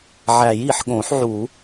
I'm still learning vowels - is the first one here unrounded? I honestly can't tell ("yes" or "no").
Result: yes